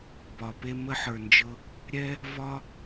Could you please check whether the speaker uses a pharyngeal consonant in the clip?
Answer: yes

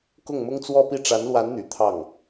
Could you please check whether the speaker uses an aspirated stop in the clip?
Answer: yes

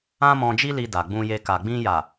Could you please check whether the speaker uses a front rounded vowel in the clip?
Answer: no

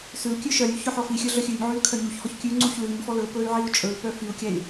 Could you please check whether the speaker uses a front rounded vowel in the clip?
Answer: yes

